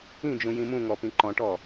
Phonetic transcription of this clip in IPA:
ĩd͡ʒũ jĩmũŋɔ pĩǃɔ̃ʈɔ

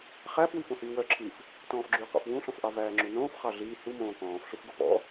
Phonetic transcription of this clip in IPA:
χæfwi fõhyːwœǁʰiːf | tɔ̃ːfɡ͡ǁyqɔ̰f wũɬɔ̃fʔɑ væːŋ͡ǁunõːf χɑɮiː humõː kɔ̃ːfɬufɡo pɔ̰

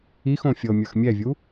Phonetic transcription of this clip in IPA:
ixõ fʲɤmʲə˞x mʲɛvʲu

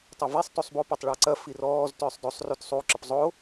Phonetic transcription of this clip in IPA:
tˤɐvisˤ tusˤbo pɔtˤɭɔǀɐ firɔːz tʏːsˤdosˤ rutsˤu ǁəpzˤo

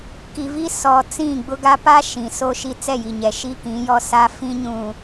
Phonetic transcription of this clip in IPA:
ki˨vi˦ sɔ˨ t͡sĩ˦˨ɡ͡bʊ˦ɡa˦ pa˦ ʃĩ˨ so˦ʃi˦ t͡sɛ˦˨ji˨ɲɛ˨ ʃi˦kĩ˨˦jɔ˦ sa˦ fĩ˦ ɲũ˨

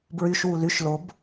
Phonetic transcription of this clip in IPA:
bɹyʃ wulyʃ lob

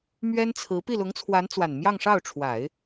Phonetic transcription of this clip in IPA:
mɥɛ˥nt͡sʰɹ̩˧˥ pi˥˩lʊ˧˥ŋt͡sʰwa˧˥n t͡swa˨˩nmjɑ˥˧ŋʂɑ˥˩ʊ̯ʈ͡ʂʰwa˨˩˦ɪ̯

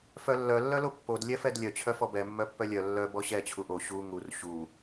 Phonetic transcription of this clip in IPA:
fœlːœ lːœlopːod lʲɛfɛdlʲœ t͡ɕʰœfɔbɛ mːœpːœlʲœ lːœ bɔɕɛ t͡ɕʰuʔo ɕu ŋur ɕu

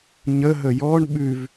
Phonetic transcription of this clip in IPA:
ɲəɦə jɔɳ ɓʉv

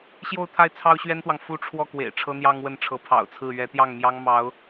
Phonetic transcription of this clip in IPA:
ɕjo˥˧ʊ̯t̪ʰa˥˩ɪ̯ t͡sʰɑ˥ʊ̯ɕɥɛ˥nt̪wɑ˨ŋ fu˥ ʈ͡ʂʰwɔ˥˩kwḛ˨˩ɪ̯ ʈ͡ʂʰɤ˥n̪jɑ˥ŋwə˥˩nʈ͡ʂʰɤ˧˥ pʰɑ̰˨˩ʊ̯t͡sʰɹ̩˥˩ ɥɛ˧˥t̪jɑ˥˩ŋmjɑ˥ŋ mɑ˧˥ʊ̯

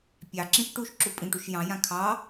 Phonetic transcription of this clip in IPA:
pʲɑǁĩʃ ʈuʃǁu pʼĩʈuʃ jɑ̃jã kʰɑ

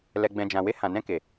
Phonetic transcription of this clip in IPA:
lɛ˨ɡ͡bɛ̃˨d͡ʒã˨we˧ hã˨nɛ̃˧ke˨

